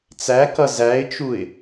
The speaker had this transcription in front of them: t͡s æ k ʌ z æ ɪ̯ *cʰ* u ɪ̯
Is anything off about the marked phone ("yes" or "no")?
yes